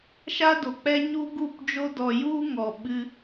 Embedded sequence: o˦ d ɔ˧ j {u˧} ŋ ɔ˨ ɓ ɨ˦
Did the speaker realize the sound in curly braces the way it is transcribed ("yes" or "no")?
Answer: no